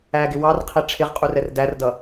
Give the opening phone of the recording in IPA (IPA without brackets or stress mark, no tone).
æ